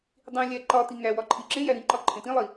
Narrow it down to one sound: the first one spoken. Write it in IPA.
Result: dˤ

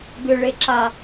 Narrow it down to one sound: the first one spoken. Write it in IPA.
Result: ɡ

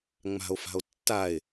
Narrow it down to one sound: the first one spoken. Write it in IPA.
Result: ŋ͡m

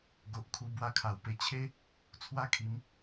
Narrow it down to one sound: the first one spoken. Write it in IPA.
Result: ɡ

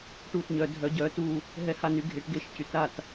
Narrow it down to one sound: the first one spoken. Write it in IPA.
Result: ʈ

